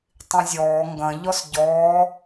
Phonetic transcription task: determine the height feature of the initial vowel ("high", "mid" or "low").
high